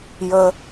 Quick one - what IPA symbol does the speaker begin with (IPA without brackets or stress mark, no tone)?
j